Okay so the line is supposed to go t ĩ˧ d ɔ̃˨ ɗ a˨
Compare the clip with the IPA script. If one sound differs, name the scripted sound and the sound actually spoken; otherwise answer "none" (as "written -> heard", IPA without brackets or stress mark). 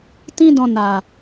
ɗ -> n